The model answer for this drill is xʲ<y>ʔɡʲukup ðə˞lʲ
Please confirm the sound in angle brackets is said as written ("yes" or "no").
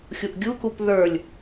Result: no